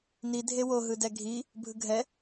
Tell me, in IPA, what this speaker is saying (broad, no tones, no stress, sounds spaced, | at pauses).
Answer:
n i dʱ e w o ɦ ɯ d ɛ ɡʱ i | bʱ ɯ ɡʱ ɛ